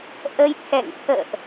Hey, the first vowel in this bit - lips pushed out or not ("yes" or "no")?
no